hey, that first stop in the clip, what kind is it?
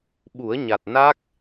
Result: implosive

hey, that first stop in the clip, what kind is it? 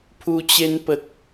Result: aspirated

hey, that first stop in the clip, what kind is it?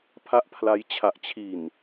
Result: aspirated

